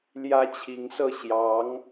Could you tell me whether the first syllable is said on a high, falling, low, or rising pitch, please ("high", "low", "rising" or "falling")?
high